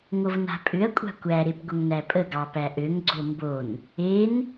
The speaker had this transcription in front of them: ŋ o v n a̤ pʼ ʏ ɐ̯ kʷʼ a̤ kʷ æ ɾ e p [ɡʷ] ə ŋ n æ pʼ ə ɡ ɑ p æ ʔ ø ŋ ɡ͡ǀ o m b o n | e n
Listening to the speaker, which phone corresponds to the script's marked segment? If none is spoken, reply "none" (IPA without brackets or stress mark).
ɡʷ